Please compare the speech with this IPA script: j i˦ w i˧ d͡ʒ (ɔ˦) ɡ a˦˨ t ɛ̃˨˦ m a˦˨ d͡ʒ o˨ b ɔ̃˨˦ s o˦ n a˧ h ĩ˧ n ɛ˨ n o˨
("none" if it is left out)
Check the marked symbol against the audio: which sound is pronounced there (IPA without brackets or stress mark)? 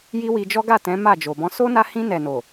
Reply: ɔ˦